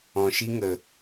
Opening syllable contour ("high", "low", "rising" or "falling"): low